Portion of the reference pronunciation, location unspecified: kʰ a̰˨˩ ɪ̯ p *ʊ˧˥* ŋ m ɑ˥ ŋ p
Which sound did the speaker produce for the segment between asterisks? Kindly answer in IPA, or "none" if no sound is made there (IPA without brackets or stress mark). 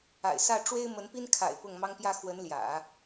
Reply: ʊ˥˩